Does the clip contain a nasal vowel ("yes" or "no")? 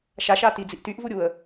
no